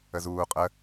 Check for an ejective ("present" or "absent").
present